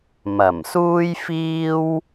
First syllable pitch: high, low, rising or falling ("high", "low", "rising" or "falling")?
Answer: low